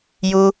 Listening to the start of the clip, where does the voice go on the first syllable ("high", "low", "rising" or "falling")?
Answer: high